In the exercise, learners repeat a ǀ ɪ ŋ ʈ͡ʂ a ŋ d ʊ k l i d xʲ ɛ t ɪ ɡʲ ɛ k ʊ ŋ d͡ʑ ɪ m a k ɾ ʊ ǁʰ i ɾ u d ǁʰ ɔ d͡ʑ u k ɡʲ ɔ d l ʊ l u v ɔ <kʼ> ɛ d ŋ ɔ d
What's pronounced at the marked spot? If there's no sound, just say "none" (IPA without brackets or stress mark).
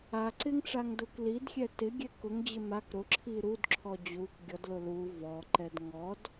ǃ